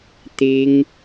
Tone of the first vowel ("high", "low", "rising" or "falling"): high